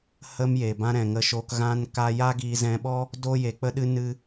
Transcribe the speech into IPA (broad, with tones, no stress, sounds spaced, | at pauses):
h ə˦ m j e˨ b ã˦ ɾ ɛ̃˨ ŋ ə˧ ʃ oː˧ k ɣ ã˦ n k a˦ j a˦ ɡ iː˧ z ɛ̃˧ ɓ ɔ˦ | d oː˦ j e˨˦ k͡p ə˦ ɗ ɨ˦ n ɨ˧